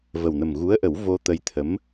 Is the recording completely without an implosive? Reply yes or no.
yes